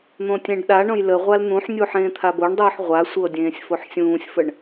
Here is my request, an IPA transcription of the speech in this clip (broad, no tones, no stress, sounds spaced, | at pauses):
n̪ õ tʲ ẽ ɖ ɗ a ɳ õ j l ə ʁʷ a l n̪ ũ ħ nʲ u ħ ẽː t̪ʰ a b o ɳ dˤ uː ħ ʁʷ a sʷ ɤ dʲ ẽː sʲ f o ħ sʲ ũː sʲ f ə ɳ